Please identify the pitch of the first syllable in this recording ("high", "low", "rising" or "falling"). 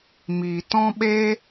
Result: low